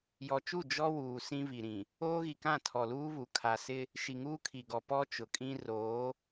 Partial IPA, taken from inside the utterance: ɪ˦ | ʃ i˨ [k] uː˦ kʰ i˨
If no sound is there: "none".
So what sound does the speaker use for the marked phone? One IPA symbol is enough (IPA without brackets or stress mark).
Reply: ŋ